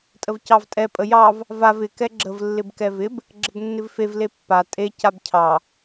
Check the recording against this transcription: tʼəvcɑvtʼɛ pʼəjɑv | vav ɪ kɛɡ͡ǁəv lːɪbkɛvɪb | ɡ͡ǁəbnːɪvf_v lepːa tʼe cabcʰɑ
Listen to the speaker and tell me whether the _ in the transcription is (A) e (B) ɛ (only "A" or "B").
A